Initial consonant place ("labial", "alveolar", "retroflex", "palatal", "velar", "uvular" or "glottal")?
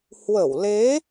glottal